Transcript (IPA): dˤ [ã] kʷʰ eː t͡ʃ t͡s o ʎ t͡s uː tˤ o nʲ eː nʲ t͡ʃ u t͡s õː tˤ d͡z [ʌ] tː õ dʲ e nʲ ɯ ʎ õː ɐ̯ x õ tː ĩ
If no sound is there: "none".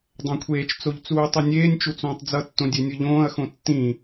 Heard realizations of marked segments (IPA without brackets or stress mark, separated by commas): ã, ʌ